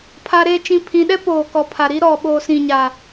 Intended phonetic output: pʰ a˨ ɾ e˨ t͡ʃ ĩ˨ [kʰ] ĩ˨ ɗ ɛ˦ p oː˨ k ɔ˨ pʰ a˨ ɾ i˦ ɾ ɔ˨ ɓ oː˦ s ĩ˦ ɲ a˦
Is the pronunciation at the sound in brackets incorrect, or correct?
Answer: incorrect